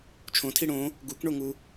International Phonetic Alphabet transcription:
t͡ʃʰ õ tʰ i ɽ õ | ɡ u k ɳ o ŋ u

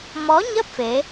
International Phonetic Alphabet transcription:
m ɔ˨˦ ɲ ə˦˥ p̚ f e˨˦

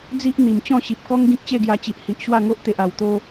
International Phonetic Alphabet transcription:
d͡z i˦ ʔ n̪ i˨˩ m t͡ɕ ɔ̃˥˧ ɕ i˨ p̚ k ɔ˦ ŋ ɡ ĩ˦ k̚ t͡ɕ e˥˧ ɡ j a˧ t͡ɕ i˨ ʔ h i˨ ʔ ɕ w a˥˧ ŋ o˦ ʔ t̪ e˨ ʔ a˨˩ w t̪ o˧

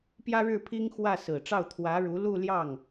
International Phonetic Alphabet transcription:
p j ä˥ ɻ ɻ̩˥˩ pʰ i˥ ŋ x w ä˥˩ s ɹ̩˨˩ ʈ͡ʂ ɑ˥˩ ʊ̯ t̪ʰ w ä˧˥ ɻ u˧˥ l u˥˧ l j ɑ˥˩ ŋ

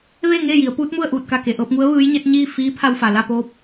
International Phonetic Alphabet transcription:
ʋ eː˥˨ ŋ eː˥˨ j i˩˧ ə̯ p uː˧˥ t̚ m u˥˨ ə̯ ʔ uː˧˩ t̚ k a˧˩ k e˩ ʔ ɤː˧ p̚ ŋ u˧˥ ə̯ ʋ ɯː˧˥ j ɲ e˧˥ t̚ ɲ iː˥˨ f iː˧˥ pʰ a˧ w f a˩ l a˥˨ p oː˧˥ p̚

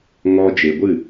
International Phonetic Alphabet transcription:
ŋ ɔ˧ d͡ʒ e˨ ɡʷ ɨ˦˨

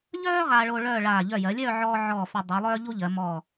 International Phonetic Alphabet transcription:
ʎ œː˥ ʁ aː˧ ɭ oː˧ ɭ œː˥˧ ɭ aː˧˩ ʎ œ˧˩ j ɜ˩˧ lʲ œː˥˧ ʕ ɔː˧ ʕ ɔː˧˩ f œ˧ dˤ u˩˧ lˠ œː˥ ʎ u˥ ʎ ɜ˩˧ m ɔ˧˩

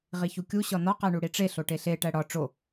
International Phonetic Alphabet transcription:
ʁ i ç u kʲ u ɕ ɒ n ɒ q æ ɳ u ɽ i ʈ͡ʂ e ɬ o ʈ e ɬ e ʈ æ ɽ ɒ ʈ͡ʂ o

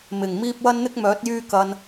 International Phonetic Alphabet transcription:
m ɪ˨˩ ŋ m iː˧ p̚ w ɐ˧ n n̪ ɪ˧ k̚ m œː˨˥ t̚ j yː˧ k ɐ˨ n

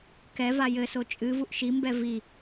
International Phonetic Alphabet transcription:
k ɛ v a j ɘ s o t͡ʃʼ ɨ v u ʔ ʃ i m b ɛ v i

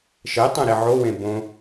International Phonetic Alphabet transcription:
ʃ e tˤ ɛ̃ ɾ i ʕ o w ẽ b õ

